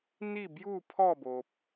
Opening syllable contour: falling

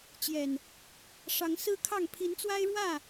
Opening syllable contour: low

